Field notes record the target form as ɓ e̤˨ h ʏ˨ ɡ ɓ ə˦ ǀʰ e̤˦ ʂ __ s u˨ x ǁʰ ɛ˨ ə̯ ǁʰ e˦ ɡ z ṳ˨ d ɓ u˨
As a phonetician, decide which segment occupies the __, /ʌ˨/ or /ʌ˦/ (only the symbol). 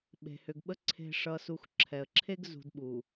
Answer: ʌ˨